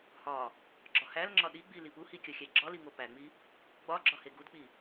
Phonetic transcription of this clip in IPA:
hɒ | ɡ͡ǁɒhælŋ͡ǁɒ ɗiɡ͡bi lipuhi kʲɒxʲæɡ͡ǁɒli ŋopæŋ͡mi | ɡ͡bɒɡ͡ǁɒ heɡudk͡pi

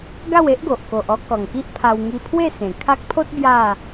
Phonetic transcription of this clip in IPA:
ɡa˥˧we˦ʔɡo˨ʔ ko˨ʔɔ˦ kɔ˨˩ŋki˦ʔ pʰa˧w ŋi˧pʰwe˥˧ sẽ˨˩ kʰa˦k̚ pʰo˦t̚ bja˥˧

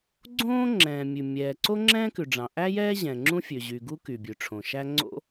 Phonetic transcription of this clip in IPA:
ɡ͡ǀõː˥ ŋ͡ǁɛ̃ː˩mʲʉ˩ mʲɛː˩ǀo˥ ŋ͡ǁɛ̃ː˥kʉ˩ ɖ͡ʐɑ̃˩ʔæ˥jɛː˥ ʑɛ̃˩ŋ͡ǁũ˥ fʲø˩ ʑy˩ɡu˥ ky˩bʲʉ˩ʈ͡ʂʰõ˩ʃæ˥ ŋ͡ǀo̰˥

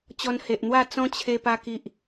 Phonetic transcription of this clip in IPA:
t͡ɕɔ˧nhe˨ʔn̪wa˥˧ t͡sɔ̃˦t͡ɕʰe˧pa˧ ki˨ʔ

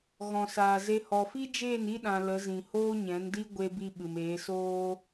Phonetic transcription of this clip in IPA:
ɣɔ̃˨saː˨ze˧ hɔ˨fi˦d͡ʒeː˦˨n i˦ɗã˨ lə˨˦zĩ˨ hoː˦ɲɛ̃˨˦ndi˦ ɡʷe˧ bi˧ ɓɨ˨meː˨˦soː˦

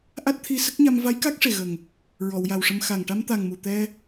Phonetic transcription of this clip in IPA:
ʔa˦˥t̚t̪ʰi˧ sə˦˥k̚ɲa˧m va˧˥jka˦˥k̚ʂe˨˩ɣə˨˩ŋ | ɹɔ˨˩˨wja˨˩wʂə˧m xa˨˩ŋ ʈa˧mt̪a˨˩ŋ mu˨˩t̪ɛ˧

